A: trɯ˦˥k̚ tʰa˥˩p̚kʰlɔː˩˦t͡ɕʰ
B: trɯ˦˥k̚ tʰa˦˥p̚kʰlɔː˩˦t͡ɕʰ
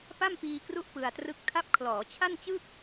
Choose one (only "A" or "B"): B